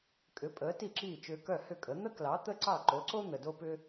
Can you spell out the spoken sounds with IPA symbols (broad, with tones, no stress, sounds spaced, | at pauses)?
kʼ ʏ˩˥ pʼ əː˩˥ t i˥˩ ǁ iː˥˩ t͡ʃ ʏː˧ k œ˥˩ h ʏ˥˩ kʼ ə˩˥ n̪ ə˥ k l ɑ˩˥ t̪ ə˥ ǀ ɑ˥˩ ǃ o˩˥ ǀ o˥ n̪ ə˩ d o˥ p ʏ˥